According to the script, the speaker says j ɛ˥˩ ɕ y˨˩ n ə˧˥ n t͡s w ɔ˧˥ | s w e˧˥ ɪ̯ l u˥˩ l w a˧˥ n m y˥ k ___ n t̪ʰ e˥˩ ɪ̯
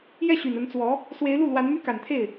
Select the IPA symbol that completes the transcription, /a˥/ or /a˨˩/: a˨˩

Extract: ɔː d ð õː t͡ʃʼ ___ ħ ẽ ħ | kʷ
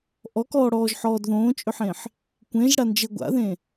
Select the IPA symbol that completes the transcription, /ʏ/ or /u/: ʏ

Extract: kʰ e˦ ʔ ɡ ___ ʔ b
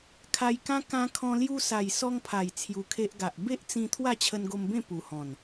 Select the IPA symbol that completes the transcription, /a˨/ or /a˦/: a˨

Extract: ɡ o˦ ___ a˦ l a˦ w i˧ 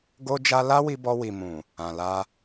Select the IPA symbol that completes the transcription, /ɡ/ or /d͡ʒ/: d͡ʒ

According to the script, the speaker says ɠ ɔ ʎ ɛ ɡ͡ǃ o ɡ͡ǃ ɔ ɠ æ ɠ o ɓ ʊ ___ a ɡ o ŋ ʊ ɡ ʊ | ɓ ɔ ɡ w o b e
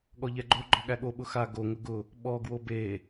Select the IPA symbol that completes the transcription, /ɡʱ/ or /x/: x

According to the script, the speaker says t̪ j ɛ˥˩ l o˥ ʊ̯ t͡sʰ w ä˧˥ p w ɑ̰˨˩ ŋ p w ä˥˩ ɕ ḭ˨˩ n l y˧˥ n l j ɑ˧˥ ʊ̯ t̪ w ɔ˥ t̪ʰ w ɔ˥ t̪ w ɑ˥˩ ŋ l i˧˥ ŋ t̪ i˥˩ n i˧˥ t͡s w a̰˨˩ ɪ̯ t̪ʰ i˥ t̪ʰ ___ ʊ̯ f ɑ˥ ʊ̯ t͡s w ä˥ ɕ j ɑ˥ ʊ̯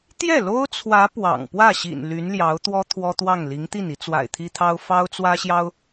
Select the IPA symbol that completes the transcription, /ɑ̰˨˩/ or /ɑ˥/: ɑ˥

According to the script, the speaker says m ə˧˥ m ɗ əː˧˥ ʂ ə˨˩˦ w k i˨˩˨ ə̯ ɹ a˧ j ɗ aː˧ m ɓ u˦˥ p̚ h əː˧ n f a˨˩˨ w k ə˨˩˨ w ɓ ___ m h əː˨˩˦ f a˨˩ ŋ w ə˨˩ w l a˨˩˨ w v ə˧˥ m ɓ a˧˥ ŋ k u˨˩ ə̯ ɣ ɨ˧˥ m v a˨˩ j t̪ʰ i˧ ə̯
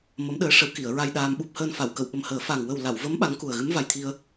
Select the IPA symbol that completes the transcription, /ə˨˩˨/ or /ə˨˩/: ə˨˩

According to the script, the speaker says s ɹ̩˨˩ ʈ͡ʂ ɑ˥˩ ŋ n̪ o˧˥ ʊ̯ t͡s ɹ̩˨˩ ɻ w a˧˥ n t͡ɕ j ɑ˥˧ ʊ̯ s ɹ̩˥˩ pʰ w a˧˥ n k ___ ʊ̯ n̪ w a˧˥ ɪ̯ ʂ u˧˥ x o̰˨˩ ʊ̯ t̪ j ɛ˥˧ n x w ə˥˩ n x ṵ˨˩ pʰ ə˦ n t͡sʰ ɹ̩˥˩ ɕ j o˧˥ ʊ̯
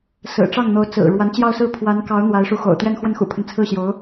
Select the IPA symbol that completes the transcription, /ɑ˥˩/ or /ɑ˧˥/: ɑ˧˥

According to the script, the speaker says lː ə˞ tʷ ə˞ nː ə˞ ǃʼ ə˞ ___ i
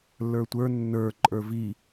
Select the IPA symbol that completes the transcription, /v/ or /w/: v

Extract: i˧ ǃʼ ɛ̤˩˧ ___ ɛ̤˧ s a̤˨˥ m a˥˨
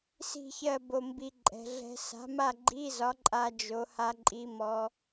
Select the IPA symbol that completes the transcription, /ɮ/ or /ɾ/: ɮ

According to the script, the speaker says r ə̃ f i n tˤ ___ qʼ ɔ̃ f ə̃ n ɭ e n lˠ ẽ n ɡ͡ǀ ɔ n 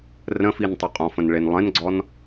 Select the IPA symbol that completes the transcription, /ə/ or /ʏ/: ʏ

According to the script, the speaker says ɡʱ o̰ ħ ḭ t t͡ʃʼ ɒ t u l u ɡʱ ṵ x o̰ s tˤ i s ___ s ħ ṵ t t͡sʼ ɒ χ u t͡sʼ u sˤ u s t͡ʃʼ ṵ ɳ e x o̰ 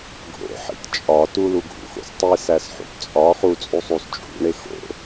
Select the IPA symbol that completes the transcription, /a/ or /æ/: æ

